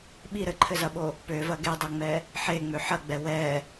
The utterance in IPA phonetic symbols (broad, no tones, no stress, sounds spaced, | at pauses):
ɓ i ɾ ɘ ǃʰ ɘ z ɐ ɓ o | p ø v ɐ ɡ e dˤ ɐ ŋ͡m ɛ | ħ e ŋ͡m ø ħ ɐ ɡ͡b ɛ w ɛ